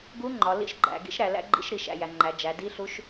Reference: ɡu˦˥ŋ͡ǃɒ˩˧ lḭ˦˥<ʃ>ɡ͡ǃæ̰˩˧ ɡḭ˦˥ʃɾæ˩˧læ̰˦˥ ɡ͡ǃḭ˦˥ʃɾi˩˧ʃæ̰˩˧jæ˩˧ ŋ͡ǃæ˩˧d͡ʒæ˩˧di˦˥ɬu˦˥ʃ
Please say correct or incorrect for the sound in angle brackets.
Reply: correct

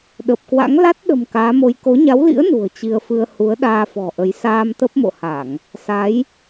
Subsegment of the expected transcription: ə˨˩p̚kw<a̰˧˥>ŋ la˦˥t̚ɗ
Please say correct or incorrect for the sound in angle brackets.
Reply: correct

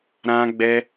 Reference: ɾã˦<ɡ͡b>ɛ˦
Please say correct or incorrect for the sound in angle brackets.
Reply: correct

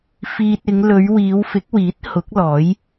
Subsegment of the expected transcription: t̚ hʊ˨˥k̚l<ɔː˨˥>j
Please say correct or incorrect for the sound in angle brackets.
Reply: correct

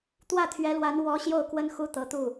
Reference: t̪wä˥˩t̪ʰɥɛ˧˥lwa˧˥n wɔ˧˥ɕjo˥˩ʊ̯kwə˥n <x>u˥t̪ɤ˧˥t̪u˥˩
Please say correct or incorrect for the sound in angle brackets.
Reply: correct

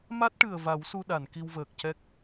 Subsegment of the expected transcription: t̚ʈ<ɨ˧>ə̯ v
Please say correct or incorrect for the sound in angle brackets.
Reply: incorrect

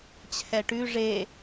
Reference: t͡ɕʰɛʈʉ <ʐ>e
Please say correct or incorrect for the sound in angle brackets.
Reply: correct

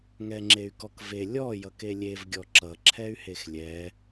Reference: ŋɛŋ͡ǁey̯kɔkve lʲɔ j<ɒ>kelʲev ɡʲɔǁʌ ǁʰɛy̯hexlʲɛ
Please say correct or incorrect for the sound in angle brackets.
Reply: incorrect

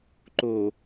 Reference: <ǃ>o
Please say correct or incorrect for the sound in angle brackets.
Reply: correct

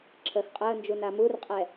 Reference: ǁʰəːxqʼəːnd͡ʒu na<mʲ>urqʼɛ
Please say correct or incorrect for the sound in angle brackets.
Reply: incorrect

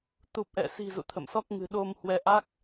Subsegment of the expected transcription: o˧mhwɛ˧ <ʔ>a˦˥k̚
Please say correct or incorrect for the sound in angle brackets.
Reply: correct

